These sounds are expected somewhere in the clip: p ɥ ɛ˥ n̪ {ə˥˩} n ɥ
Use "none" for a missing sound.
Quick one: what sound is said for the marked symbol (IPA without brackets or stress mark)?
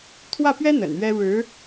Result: ə̰˨˩